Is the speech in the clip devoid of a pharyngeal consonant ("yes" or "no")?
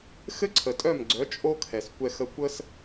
yes